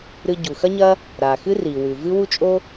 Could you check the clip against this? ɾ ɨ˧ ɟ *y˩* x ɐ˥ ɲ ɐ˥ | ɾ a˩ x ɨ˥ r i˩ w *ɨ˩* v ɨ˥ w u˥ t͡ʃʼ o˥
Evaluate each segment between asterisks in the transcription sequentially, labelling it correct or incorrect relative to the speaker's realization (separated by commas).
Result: incorrect, incorrect